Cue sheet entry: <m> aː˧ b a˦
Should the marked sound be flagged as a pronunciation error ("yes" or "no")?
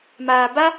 no